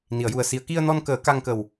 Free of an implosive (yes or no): yes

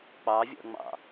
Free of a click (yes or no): yes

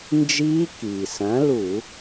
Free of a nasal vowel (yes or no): no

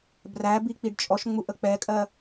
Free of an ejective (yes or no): no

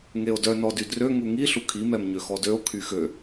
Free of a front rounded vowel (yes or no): no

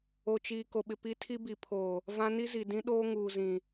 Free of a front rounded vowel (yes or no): yes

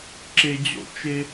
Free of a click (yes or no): no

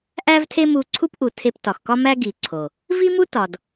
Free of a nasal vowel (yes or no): yes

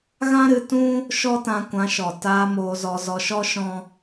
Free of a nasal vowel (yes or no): no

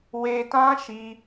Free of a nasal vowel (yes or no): no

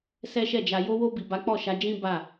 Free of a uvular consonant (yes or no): yes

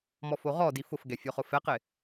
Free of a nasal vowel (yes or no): yes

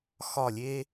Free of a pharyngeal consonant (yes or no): yes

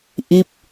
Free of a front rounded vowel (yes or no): yes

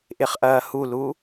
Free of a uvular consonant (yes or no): no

